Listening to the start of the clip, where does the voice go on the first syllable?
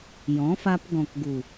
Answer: rising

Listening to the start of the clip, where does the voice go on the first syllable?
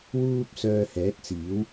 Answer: high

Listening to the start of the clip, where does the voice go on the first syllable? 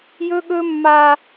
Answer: high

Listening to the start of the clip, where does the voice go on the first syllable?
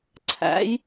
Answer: rising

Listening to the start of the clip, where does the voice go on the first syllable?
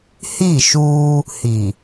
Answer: falling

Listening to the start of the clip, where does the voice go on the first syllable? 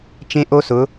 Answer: high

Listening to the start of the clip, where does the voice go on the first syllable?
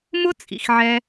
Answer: high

